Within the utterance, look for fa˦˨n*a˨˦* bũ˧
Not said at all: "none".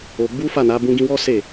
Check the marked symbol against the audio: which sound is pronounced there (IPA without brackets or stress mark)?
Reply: a˨˦